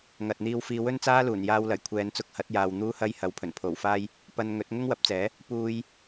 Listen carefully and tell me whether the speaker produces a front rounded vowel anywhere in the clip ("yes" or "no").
no